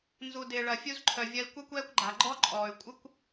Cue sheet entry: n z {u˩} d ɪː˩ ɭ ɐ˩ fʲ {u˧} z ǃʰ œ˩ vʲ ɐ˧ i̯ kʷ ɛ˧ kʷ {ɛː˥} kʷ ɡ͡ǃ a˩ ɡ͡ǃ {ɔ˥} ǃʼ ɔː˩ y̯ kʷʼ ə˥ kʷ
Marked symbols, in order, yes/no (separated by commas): yes, yes, no, yes